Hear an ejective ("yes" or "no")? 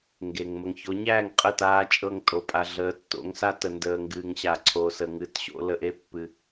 yes